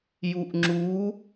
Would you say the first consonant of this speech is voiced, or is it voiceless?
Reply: voiced